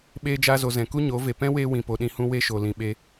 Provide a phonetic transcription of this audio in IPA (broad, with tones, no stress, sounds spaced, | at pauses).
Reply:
ɓ eː˧ d͡ʒ aː˧ z o˨ z ɛ̃˨ k u˦ ɲ o˨˦ v e˨ p ɛ̃˦ w eː˧ w ĩ˨ p o˨ ɗ ĩ˨ h ũ˧ w e˦ ʃ o˨ l ĩ˨ ɓ e˧